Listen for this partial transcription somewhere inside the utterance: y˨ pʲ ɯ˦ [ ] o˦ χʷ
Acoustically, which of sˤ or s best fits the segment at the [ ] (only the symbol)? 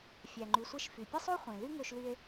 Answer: sˤ